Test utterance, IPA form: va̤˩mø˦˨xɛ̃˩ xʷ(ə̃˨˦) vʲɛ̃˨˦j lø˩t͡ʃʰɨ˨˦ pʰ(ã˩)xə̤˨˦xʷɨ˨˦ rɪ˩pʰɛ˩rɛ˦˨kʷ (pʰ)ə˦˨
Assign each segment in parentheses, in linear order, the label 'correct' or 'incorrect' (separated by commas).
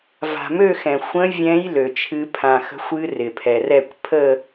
correct, correct, correct